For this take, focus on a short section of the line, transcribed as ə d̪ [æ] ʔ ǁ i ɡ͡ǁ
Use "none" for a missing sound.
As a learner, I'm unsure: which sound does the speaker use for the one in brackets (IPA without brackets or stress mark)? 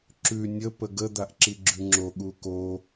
a